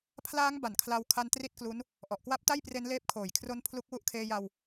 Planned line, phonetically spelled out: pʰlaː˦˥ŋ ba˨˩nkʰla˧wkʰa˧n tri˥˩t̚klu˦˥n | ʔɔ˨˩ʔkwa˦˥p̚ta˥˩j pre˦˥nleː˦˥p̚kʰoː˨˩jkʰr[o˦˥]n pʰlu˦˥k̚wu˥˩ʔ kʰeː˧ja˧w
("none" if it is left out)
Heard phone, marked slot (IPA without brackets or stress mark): o˦˥